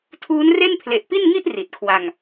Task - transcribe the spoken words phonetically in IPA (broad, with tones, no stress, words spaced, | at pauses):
tʰuː˦˥nre˥˩n pʰle˨˩ʔpi˥˩nŋi˥˩ʔ ri˨˩t̚kʰwa˧ŋ